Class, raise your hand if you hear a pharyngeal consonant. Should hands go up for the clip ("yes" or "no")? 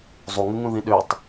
no